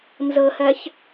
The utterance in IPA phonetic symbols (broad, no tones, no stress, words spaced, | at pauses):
nzɤhɜç